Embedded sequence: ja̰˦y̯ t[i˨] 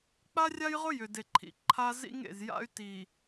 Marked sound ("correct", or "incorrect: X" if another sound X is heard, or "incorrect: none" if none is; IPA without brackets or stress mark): correct